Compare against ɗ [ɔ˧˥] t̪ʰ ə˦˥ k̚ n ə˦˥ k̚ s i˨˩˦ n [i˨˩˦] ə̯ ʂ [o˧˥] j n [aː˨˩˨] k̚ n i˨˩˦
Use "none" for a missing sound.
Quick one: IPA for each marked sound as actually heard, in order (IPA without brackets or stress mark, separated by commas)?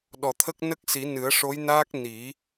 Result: ɔ˨˩, ɨ˨˩˦, o˧˥, aː˦˥